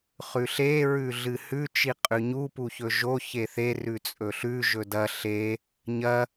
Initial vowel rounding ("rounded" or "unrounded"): rounded